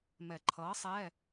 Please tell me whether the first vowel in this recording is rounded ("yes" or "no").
no